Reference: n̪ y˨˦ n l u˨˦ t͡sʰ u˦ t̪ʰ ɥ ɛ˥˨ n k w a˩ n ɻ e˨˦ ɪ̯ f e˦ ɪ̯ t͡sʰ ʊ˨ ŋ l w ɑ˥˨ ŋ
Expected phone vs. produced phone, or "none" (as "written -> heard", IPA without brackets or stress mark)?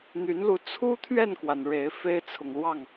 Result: none